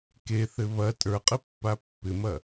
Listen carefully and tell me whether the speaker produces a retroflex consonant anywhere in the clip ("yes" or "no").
no